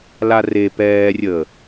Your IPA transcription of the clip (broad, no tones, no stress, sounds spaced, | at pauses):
l a r e p ɛː rʲ əː